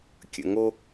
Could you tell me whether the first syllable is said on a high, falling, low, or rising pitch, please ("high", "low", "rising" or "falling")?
low